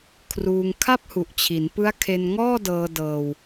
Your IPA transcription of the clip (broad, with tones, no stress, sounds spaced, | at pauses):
kʰ r uː˧ ŋ kʰ a˥˩ p̚ h u˨˩ ʔ t͡ɕʰ i˩˦ n p ɯ˦˥ a̯ kʰ e˧ n ŋ ɔː˥˩ d ɤː˧ d ɤː˧ w